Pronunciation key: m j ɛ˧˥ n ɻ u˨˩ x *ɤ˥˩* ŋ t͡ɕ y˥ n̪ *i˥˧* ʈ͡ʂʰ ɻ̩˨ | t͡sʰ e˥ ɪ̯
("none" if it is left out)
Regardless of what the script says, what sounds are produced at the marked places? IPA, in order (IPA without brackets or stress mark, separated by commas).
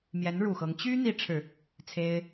ɤ˧˥, i˥